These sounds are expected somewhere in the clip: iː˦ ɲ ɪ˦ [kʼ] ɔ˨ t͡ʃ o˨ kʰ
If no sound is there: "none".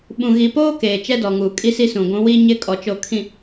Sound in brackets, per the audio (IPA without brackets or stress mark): kʼ